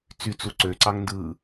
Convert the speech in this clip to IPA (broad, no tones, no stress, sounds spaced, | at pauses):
t͡s y t͡s u ǀ ø ǀ ɑ ŋ n d ɯ